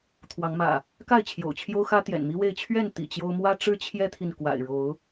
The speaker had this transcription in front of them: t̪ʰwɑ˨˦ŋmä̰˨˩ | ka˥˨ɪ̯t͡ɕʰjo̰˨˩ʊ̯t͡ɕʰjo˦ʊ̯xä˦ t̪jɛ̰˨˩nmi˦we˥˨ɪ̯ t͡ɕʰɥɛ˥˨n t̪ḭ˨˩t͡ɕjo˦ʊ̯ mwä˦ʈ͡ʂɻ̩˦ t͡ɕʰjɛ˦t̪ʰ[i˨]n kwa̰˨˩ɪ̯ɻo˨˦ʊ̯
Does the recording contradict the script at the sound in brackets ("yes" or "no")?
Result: no